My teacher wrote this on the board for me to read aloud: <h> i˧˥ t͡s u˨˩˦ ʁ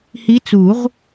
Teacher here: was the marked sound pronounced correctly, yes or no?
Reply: yes